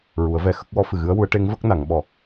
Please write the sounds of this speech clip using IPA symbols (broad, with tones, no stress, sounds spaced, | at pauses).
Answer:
ɹ u˨˩˦ ə̯ v ɛ˧ x ə˦˥ k̚ w ɔ˧˥ f ɨ˨˩ ɣ ɨ˧˥ ə̯ w u˧˥ ə̯ ʈ e˧˥ ŋ v ə˦˥ k̚ n a˨˩˨ ŋ ɓ ɔ˨˩